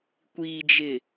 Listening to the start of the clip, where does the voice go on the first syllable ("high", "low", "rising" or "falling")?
low